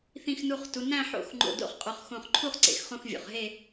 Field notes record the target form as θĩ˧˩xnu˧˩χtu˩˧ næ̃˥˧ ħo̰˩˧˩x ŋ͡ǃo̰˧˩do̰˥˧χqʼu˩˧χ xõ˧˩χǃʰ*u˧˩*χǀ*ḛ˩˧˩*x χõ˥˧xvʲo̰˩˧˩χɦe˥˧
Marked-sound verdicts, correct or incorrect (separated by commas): incorrect, correct